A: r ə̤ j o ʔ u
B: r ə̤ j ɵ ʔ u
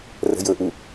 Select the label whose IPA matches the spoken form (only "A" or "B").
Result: B